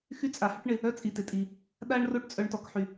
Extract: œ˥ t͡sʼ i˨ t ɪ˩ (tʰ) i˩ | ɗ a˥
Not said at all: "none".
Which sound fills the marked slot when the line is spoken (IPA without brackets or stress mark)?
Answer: tʼ